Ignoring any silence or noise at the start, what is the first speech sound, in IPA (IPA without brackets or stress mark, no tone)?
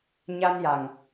ɲ